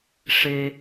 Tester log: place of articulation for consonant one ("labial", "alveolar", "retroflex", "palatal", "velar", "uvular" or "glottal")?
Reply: retroflex